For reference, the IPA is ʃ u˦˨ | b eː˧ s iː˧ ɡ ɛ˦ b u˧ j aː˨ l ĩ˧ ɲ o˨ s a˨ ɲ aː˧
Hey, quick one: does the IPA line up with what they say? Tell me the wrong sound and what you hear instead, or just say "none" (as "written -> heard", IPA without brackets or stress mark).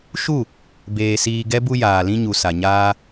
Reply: o˨ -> u˨